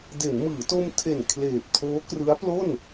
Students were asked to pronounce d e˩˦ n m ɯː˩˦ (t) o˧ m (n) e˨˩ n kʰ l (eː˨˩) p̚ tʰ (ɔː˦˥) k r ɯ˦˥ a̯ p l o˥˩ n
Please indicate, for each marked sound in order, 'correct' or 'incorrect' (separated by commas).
correct, incorrect, correct, incorrect